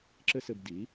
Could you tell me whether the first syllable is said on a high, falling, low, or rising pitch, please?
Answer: high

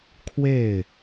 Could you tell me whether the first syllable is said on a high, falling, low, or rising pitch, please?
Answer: falling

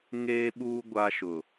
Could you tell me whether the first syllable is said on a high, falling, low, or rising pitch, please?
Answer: high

